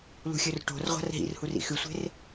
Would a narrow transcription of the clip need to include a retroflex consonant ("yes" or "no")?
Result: yes